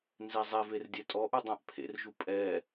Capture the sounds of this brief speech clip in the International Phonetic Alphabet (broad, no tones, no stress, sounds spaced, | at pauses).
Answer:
n z ɛ zˤ ɛ v e r dʲ ɛ tʼ ɔ ʔ u dˤ ã ʔ pʰ ḛ r ʒ u pʼ ɛ